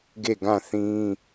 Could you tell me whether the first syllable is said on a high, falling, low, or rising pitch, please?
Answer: falling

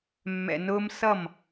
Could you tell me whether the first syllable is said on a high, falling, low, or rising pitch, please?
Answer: low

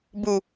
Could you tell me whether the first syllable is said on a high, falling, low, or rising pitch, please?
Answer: low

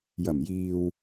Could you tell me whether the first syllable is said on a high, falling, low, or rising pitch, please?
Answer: low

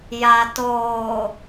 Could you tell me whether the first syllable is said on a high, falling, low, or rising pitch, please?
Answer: low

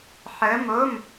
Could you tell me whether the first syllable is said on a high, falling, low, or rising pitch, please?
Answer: rising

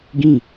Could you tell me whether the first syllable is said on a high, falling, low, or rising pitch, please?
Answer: falling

